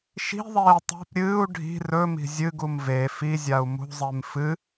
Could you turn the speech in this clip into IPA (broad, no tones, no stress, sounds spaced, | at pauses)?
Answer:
ʃ i̤ ðˤ eː tˤ o̤ p ɾʲ ɨː u̯ ɖʱ i̤ r ɵ m i̤ zʲ ɨ ɡ u m v e f i zʲ a u̯ m ṳ zˤ e m f ɨ